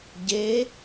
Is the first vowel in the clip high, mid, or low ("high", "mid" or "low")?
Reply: mid